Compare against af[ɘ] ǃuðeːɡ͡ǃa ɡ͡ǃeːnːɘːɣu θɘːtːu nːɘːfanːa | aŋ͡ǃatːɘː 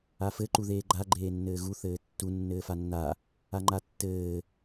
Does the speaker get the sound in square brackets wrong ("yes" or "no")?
no